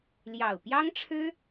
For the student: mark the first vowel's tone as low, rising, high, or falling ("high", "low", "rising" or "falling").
low